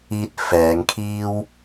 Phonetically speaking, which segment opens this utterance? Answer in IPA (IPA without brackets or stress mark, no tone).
iː